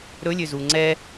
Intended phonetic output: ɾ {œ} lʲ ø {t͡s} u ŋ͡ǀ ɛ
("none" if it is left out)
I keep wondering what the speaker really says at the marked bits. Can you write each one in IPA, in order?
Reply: ɵ, z

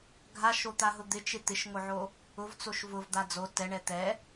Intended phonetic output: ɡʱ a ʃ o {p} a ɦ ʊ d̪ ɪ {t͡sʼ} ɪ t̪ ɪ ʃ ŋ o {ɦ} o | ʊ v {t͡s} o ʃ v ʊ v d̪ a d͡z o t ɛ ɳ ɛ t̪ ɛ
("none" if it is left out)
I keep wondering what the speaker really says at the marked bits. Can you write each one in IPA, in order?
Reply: t̪, t͡ʃ, ʕ, t͡s

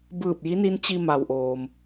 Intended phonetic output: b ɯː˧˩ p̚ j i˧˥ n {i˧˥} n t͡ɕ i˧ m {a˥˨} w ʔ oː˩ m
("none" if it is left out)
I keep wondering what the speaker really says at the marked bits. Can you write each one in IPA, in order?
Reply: i˧˥, a˩

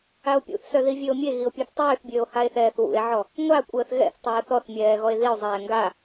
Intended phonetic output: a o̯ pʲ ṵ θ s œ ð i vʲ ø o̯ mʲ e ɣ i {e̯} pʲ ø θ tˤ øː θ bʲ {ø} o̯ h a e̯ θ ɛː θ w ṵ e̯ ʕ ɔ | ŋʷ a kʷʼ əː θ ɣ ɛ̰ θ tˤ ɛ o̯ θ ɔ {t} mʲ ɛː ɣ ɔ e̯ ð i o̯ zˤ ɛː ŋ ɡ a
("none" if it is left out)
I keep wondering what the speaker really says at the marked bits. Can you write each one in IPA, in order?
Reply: o̯, øː, θ

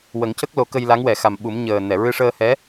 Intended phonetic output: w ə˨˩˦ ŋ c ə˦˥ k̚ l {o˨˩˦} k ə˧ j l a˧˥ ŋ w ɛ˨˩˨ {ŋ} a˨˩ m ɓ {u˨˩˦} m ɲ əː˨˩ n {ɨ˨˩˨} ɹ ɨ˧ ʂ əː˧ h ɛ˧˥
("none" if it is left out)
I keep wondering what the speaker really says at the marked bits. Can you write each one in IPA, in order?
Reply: o˨˩˦, x, u˨˩˦, ɛ˨˩˨

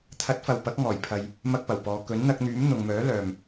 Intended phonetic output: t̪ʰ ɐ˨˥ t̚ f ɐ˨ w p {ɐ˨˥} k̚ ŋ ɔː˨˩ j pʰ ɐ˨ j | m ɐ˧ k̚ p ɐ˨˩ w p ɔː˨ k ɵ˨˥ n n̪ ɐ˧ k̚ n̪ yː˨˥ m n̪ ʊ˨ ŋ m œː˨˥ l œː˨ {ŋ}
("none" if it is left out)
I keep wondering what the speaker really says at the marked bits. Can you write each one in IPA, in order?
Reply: ɐ˨˥, m

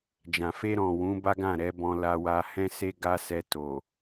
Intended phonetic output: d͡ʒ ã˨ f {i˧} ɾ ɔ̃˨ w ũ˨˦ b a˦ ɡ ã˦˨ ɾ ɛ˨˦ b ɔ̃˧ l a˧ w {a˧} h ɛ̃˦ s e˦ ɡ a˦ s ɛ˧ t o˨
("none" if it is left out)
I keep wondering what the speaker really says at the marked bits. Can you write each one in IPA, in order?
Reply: e˧, a˧

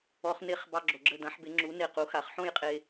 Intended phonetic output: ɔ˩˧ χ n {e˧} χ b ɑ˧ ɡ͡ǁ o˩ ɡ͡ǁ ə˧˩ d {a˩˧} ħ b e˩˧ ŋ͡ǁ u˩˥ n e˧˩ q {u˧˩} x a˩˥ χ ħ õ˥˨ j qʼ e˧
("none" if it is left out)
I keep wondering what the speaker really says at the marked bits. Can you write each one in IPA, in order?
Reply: e˧, ã˩˧, u˩˥

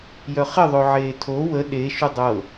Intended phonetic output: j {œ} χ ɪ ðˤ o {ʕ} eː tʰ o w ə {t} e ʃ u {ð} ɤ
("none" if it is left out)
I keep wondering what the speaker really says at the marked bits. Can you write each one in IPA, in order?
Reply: œ, ʕ, ɗ, dˤ

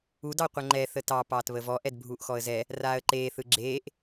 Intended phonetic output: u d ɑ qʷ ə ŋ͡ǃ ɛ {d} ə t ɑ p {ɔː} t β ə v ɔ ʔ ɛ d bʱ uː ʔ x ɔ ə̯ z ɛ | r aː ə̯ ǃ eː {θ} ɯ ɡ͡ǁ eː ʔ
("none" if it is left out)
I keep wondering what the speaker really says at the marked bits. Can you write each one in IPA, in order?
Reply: θ, ɑː, θ

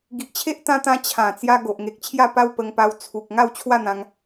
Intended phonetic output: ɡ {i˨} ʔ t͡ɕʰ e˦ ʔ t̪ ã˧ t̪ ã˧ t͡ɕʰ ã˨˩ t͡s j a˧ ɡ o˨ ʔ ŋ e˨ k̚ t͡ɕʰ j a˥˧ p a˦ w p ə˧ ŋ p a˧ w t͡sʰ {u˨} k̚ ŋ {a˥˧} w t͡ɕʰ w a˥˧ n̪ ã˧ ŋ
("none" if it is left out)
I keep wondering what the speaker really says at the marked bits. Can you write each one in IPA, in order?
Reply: i˨, u˨, a˥˧

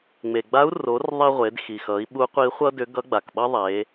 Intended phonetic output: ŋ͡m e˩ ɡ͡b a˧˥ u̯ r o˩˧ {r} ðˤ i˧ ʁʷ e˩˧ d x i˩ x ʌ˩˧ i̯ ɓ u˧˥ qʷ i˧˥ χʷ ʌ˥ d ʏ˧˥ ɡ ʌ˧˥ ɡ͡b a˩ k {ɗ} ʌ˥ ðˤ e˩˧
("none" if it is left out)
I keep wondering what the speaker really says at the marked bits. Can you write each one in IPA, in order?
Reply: r, ɓ

